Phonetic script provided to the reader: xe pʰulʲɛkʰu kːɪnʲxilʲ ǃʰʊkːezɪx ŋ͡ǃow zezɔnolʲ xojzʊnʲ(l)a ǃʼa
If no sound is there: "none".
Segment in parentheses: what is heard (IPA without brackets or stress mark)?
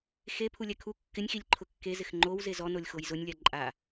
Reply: lʲ